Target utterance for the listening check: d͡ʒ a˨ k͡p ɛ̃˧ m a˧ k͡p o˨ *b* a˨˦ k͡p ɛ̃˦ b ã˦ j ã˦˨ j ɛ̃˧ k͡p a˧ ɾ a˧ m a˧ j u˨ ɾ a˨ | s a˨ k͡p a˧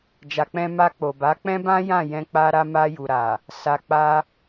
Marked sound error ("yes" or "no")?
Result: no